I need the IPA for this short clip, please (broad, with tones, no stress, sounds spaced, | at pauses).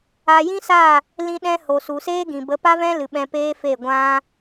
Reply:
a˧ j ĩ˦ s a˦˨ | l ĩ˦ ɗ ɛ̃˦ h o˨ s u˨ s eː˦ ɡ ĩ˨ b ə˨˦ p a˦ v ɛ̃˦ l ɨ˨ ɓ ɛ̃˧ p eː˦ f e˦˨ ɡʷ ã˦